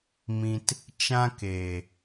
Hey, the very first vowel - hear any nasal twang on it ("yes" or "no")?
yes